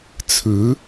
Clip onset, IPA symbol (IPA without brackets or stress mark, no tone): t͡sʰ